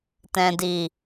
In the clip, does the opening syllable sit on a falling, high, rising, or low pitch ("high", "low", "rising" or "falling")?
low